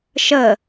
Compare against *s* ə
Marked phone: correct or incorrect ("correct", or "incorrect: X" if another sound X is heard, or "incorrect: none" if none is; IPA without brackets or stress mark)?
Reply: incorrect: ʃ